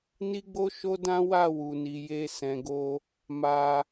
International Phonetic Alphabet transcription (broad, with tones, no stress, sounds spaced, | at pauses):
n i˦ ɡ͡b o˦ ʃ o˦ d ã˦ w a˦˨ w u˨ n i˨ j e˧ s ɛ̃˨ ɡ o˧ | m a˧